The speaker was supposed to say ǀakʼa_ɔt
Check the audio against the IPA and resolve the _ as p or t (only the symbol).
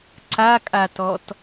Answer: t